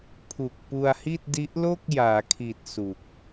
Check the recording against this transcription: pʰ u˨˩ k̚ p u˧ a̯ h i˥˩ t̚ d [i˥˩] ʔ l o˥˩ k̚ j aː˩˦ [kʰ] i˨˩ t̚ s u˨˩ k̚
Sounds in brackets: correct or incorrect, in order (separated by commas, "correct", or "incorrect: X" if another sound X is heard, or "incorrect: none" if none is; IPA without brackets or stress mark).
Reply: incorrect: i˦˥, correct